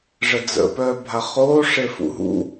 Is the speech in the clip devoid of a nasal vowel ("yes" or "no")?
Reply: yes